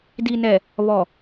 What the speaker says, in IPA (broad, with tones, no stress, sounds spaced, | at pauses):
d i˨ n ɛ˨ | β ɔ˨